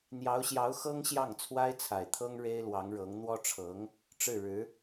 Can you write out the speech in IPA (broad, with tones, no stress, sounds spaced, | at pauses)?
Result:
n̪ j ɑ˧˥ ʊ̯ ɕ j ɑ˧˥ ʊ̯ x ɤ˥ ŋ ɕ j ɑ˥˩ ŋ t͡sʰ w a˥ ɪ̯ t͡sʰ a˨˩ ɪ̯ t̪ʰ ɤ˥ ŋ ɻ e˥ ɪ̯ l w ɑ˧˥ ŋ ɻ ɤ˧˥ ŋ n̪ w ɔ˥ ʈ͡ʂʰ ɤ˧˥ ŋ | ʈ͡ʂ ɻ̩˥˩ ɻ ɻ̩˧˥